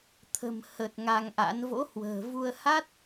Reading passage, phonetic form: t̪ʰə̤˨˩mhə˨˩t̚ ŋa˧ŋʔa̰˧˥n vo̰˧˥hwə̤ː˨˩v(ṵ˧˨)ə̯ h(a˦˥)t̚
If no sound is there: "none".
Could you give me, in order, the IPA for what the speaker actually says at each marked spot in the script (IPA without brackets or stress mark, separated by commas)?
u˧, a˦˥